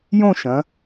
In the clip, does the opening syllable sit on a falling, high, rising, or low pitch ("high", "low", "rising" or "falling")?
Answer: falling